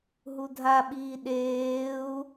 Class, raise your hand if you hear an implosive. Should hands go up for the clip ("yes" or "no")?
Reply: yes